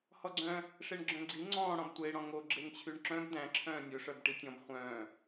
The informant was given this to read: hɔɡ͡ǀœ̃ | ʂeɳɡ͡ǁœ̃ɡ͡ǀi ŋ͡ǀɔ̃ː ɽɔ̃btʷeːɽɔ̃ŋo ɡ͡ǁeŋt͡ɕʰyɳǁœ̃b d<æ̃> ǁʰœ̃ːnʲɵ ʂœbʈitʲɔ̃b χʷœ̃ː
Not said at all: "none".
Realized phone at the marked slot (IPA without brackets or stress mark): æ̃